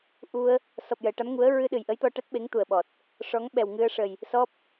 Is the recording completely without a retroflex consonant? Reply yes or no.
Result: no